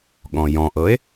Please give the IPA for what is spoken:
ɠ ɔ̃ j ɔ̃ ʔ ɤ e̯

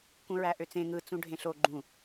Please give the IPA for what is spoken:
k ũ ɹ æ ʔ ø t͡s ẽ ŋ ɯ t͡s ũ ɖʱ ẽ ɬ o ɡ͡ǃ ũ

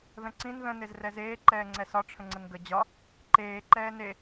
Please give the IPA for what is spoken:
ð ə̃ ǀ ĩ n ð ə̃ n e z r ɛ z eː ǃ ɛː ŋ͡ǀ ɛ s ɒ ʈ͡ʂʰ ə̃ ŋ͡ǀ ə n ɡ ə d͡ʑ ɒ | ǃ eː ǃ ɛː n e

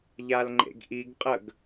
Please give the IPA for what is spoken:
ʎ a l ŋ͡ǃ ḛ ɡ ʔ i ɡ qʼ ə ɡ

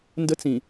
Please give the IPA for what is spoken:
n d ə˦ t͡s ĩ˨

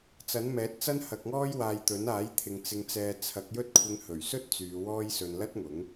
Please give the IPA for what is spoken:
t͡s ɐ˨˥ n m ɛː˨˥ t̚ t͡s ɐ˥ n h ɐ˧ k̚ ŋ ɔː˥ j w aː˧ j t̪ ɵ˨˥ n aː˨˥ j t̪ʰ ɪ˨˧ ŋ t͡s ɪ˧ ŋ t͡s ɛː˧ t͡sʰ ɐ˨˥ k̚ j ɵ˥ t̚ kʷʰ ɪ˧ ŋ h ɵ˨˩ ɥ s ɵ˥ t̚ t͡s yː˨˧ w ɔː˥ j s ɵ˧ n l ɐ˥ t̚ ŋ ʊ˨˥ ŋ

